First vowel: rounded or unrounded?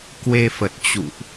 unrounded